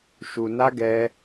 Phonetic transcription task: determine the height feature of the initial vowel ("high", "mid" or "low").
high